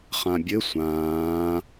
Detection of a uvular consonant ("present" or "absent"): present